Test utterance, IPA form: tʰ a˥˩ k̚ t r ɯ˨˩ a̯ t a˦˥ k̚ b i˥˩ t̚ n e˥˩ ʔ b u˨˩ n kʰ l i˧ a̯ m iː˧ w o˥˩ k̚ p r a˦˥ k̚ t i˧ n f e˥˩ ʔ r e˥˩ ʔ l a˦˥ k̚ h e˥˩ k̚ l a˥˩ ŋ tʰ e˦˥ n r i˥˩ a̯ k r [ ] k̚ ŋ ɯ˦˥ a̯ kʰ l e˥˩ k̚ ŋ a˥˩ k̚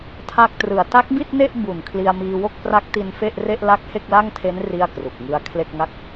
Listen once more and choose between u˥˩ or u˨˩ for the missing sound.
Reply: u˨˩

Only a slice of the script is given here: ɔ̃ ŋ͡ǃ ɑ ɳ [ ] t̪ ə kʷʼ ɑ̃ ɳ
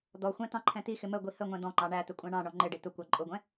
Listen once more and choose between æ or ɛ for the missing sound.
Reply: æ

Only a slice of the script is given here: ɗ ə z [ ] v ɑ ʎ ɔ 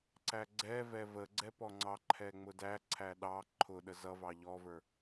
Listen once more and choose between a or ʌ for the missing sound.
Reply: ʌ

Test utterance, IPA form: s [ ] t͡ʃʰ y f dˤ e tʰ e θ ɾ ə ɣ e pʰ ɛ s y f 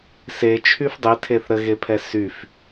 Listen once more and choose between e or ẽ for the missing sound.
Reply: e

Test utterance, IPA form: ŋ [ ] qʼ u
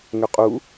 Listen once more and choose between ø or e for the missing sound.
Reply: ø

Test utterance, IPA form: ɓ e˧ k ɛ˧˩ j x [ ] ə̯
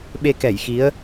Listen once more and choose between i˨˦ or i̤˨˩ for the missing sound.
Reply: i˨˦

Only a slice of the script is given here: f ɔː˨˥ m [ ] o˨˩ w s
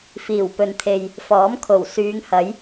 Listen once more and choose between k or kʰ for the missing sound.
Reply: kʰ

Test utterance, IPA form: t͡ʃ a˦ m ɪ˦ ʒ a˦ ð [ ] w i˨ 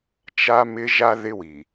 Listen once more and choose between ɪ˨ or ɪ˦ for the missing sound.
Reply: ɪ˦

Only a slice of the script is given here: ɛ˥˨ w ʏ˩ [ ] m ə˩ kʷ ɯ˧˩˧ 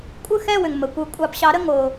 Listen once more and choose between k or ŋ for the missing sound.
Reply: ŋ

